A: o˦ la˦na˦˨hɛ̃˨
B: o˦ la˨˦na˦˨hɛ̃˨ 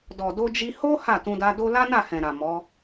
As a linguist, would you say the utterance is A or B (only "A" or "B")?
A